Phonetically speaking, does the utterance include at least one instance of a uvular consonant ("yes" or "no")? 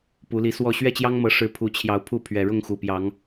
no